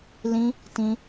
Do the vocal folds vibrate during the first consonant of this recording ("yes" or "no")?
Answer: yes